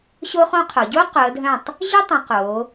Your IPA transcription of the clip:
ɕo˥χõ˥qʰo˩˧ ɟo˥ qʊ˩˧ə̯dʱœ̃˧˩tˤ | ʑʏ˥tˤẽ˩˧ qo˩˧

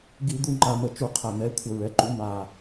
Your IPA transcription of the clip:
ɡi˧˩˧d̪u˨˩ ŋ͡ǃa˨˩mə˧˩˧t͡ʃu˧˩˧ qʰæ˨˩n̪ɛ˩˥ kʷʰə˧˩˧ɹɛ˩˥ǃu˩˥ na˨˩

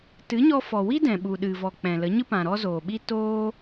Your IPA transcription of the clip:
tɨ˨˦ɲɔ˧fɔ˨wi˦ dɛ̃˨ ɓu˨ɗɨ˨vɔ˨ k͡pɛ̃˨lə˨˦ ɲɨ˦pã˨ɾɔ˦ zoː˨ɓi˦ toː˦

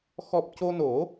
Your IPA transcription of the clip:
xɔ˨˩p̚ co˧no˨˩˦

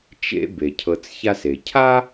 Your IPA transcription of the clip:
t͡ʃḛ˦ be˩cʰɤ˨t͡s ça˦se˩ cʰa˥

